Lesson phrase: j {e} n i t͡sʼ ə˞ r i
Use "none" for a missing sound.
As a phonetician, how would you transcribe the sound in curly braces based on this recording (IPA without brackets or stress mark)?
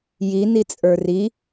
i